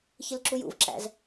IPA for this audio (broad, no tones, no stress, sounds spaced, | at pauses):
ç ɪ l ǁ u j ṵ v ǁ æ̰ z